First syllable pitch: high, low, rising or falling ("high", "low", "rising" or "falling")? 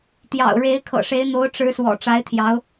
low